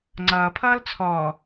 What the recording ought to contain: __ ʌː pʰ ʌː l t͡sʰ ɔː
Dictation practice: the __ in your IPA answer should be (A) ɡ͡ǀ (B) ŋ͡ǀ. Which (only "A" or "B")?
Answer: B